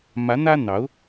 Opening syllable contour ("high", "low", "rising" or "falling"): rising